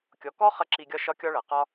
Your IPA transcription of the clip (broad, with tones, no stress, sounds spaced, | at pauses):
kʲ ɔ˩˧ k ɔ˥ χ ɐ˧ ǁ i˧ ɡʲ ɒ˥ ʃ ɒ˥ kʲ ɒ˥ ɭ ɐ˩˧ q ɒ˥